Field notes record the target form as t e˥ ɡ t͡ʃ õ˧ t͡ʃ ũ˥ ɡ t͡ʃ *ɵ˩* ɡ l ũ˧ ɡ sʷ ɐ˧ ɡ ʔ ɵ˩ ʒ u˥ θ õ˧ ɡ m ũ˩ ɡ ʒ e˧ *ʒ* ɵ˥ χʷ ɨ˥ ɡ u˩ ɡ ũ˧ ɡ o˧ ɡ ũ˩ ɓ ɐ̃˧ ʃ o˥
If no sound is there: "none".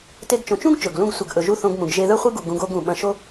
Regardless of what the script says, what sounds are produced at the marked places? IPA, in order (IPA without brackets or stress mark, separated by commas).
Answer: ɵ˩, ð